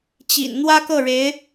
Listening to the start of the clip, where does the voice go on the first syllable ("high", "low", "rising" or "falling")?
low